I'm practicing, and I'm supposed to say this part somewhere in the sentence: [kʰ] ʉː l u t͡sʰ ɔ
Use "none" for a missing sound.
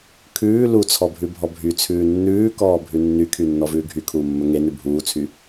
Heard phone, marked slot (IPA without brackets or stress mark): kʰ